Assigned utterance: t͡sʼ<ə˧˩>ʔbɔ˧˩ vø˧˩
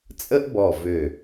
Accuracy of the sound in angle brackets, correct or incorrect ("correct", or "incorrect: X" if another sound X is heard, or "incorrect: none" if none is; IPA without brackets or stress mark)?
incorrect: ə˥